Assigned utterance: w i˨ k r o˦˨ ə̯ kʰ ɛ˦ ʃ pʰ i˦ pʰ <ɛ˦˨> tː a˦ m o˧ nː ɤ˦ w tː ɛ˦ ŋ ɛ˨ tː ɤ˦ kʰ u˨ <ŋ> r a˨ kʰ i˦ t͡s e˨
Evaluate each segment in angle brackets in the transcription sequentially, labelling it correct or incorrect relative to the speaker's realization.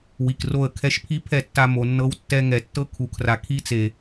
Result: correct, incorrect

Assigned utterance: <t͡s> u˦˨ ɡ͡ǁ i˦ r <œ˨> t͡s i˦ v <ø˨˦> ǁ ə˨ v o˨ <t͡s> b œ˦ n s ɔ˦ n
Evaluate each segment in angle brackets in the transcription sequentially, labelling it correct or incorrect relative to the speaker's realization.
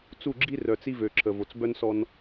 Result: correct, correct, incorrect, correct

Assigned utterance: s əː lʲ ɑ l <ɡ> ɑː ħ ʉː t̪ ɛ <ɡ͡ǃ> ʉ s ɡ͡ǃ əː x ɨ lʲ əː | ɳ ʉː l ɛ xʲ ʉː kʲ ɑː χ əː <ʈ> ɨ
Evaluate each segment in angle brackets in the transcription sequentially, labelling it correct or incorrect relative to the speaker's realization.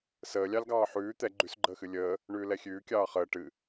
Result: correct, correct, correct

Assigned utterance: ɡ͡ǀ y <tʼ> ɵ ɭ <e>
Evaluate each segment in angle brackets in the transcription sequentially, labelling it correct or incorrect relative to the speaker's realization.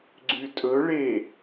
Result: correct, correct

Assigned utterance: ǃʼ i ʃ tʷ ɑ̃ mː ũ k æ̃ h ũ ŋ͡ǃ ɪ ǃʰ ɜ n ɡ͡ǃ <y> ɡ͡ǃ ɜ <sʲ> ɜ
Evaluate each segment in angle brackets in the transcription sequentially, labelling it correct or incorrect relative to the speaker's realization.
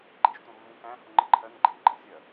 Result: incorrect, correct

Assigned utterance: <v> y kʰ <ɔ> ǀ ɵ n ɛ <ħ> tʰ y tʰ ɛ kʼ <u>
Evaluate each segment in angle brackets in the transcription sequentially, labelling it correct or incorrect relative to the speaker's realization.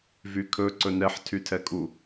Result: correct, incorrect, correct, correct

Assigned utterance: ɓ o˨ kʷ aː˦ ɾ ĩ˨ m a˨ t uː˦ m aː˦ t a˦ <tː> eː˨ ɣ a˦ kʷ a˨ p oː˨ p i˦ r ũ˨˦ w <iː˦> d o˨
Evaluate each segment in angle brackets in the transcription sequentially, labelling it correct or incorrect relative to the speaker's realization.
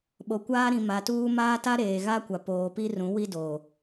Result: incorrect, incorrect

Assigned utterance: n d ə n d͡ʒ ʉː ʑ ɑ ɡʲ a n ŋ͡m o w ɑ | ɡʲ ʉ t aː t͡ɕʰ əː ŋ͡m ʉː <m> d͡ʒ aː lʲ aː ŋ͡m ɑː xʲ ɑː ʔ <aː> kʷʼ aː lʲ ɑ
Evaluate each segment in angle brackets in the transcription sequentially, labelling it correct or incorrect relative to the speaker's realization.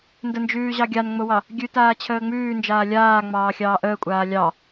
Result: incorrect, incorrect

